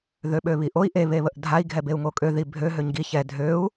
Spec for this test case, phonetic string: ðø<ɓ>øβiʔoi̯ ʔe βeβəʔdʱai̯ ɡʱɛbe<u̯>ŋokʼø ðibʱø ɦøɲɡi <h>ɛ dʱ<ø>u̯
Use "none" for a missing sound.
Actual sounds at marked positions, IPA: ɓ, u̯, ç, ø

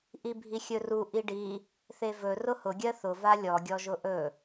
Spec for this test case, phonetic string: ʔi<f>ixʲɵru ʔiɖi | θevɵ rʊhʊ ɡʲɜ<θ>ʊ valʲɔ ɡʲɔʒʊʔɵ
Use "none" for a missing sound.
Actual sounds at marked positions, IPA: bʱ, θ

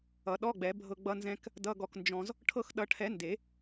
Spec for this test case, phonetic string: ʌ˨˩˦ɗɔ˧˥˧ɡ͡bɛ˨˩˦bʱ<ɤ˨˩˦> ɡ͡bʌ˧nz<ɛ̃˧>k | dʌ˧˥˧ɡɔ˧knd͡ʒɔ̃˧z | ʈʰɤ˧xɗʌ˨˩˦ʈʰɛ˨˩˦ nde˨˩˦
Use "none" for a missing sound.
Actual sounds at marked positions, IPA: ɤ˧, ɛ̃˧

